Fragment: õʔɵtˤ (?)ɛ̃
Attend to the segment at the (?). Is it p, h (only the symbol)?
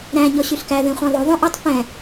p